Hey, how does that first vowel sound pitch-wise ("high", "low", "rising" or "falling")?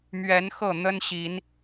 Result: rising